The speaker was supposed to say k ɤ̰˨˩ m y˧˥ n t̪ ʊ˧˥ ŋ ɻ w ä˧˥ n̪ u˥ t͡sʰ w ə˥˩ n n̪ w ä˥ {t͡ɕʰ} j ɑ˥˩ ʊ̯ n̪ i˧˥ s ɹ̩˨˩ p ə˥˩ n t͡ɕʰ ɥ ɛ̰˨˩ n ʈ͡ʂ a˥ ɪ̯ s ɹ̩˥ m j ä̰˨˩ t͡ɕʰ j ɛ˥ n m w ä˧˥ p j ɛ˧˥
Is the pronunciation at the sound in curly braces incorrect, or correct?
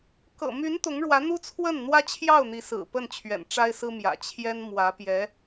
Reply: correct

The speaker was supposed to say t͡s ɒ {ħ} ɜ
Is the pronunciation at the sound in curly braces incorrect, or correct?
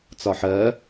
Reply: correct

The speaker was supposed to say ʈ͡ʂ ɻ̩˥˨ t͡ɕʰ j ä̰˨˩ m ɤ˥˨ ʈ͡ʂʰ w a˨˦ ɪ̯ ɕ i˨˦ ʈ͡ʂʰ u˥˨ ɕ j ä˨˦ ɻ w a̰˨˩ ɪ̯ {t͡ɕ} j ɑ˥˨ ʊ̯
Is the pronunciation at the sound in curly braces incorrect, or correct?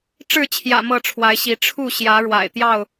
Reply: incorrect: t̪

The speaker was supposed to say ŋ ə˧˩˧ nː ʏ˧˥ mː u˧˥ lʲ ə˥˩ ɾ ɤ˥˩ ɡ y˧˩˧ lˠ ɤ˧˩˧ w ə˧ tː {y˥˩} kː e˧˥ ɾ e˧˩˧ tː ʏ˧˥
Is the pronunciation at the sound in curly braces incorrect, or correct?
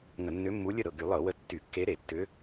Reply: incorrect: y˧˩˧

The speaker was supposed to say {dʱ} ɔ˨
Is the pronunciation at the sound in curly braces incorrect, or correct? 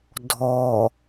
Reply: correct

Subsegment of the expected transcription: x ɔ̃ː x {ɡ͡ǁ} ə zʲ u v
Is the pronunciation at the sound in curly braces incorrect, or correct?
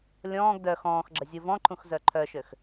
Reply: correct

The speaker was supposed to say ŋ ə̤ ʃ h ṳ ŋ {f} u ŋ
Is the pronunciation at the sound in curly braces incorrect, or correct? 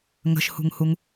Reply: incorrect: h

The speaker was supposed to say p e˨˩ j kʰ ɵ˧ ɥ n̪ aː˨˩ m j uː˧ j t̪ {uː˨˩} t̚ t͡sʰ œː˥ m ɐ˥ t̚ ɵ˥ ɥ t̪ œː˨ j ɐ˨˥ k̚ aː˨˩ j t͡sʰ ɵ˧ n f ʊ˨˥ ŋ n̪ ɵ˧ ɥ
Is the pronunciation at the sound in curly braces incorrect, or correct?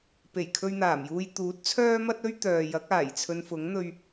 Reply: incorrect: uː˨˥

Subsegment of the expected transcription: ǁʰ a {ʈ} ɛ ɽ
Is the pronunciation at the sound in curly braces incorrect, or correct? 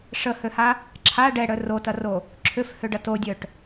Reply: incorrect: ɖ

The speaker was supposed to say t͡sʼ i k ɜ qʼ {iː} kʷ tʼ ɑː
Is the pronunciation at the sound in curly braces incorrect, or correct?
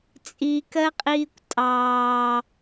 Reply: correct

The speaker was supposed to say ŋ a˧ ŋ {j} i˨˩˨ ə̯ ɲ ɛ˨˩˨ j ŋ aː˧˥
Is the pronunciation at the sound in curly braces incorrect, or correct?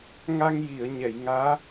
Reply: correct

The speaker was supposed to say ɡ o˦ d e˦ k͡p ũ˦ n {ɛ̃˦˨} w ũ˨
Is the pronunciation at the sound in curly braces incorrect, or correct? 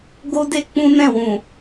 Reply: correct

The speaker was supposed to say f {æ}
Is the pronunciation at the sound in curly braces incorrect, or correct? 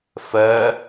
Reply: incorrect: ɜ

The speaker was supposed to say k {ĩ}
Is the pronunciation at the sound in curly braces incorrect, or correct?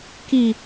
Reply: incorrect: i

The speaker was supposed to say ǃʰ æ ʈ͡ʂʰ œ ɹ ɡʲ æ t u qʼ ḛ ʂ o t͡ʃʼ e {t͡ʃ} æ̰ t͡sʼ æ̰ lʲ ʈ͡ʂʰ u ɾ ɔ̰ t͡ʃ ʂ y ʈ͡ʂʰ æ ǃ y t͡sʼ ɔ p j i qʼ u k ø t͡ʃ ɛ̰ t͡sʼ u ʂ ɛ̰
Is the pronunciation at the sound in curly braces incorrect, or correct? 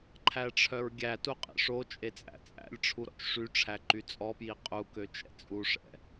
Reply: incorrect: t͡sʼ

